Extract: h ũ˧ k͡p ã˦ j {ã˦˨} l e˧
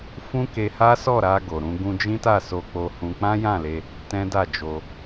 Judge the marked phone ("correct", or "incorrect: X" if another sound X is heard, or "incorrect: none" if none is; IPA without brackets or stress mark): correct